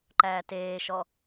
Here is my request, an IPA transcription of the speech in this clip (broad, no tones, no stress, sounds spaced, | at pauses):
ǃ æː t eː ʃ ɔ